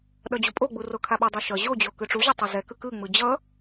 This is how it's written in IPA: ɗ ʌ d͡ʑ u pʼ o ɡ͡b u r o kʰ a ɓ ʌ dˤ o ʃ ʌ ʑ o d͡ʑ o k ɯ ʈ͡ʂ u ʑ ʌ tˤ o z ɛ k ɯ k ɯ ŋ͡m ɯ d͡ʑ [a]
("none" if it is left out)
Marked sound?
ʌ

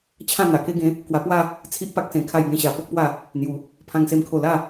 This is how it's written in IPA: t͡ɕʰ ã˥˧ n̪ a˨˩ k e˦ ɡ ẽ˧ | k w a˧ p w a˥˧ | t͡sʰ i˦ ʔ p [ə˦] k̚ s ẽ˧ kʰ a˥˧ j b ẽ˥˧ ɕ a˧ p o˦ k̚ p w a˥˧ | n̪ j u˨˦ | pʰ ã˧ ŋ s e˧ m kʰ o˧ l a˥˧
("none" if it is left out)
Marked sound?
a˦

